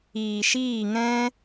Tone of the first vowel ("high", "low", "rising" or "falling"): low